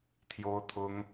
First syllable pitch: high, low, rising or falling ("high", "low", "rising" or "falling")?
high